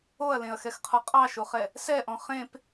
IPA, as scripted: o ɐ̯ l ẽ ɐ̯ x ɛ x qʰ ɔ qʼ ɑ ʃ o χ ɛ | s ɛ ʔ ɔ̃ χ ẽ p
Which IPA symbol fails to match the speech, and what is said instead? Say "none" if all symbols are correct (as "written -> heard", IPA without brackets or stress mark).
none